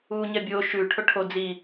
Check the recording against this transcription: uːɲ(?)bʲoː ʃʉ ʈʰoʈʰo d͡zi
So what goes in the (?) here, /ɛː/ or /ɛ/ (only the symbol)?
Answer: ɛ